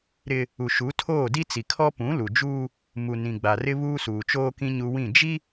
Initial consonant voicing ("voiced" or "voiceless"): voiced